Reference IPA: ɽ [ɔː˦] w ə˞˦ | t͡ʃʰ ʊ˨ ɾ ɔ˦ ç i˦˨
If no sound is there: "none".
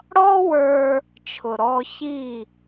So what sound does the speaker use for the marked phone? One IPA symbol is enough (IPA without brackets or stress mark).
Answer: ɔ˦